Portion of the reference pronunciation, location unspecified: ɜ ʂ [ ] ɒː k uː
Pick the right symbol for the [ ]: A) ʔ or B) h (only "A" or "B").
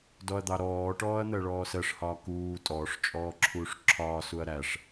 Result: B